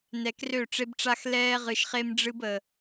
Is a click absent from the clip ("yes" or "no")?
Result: yes